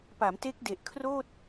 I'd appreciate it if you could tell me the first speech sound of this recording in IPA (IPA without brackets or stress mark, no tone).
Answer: p